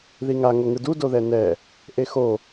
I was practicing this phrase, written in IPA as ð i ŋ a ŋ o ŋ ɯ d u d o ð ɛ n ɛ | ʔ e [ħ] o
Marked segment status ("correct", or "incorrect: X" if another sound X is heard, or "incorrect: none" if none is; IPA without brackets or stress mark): incorrect: x